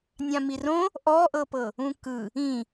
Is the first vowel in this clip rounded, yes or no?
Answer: no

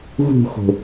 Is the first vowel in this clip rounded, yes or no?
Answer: yes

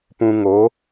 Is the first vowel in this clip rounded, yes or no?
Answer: yes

